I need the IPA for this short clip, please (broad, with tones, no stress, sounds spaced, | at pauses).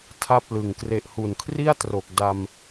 tʰ a˥˩ p̚ l ɯ˨˩ ŋ k r e˨˩ ʔ h u˨˩ n kʰ r i˥˩ a̯ t r o˨˩ k̚ d a˧ m